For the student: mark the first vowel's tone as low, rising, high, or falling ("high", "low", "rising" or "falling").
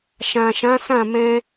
low